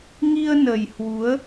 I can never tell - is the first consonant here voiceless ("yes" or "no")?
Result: no